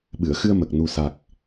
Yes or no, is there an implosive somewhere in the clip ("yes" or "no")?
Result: yes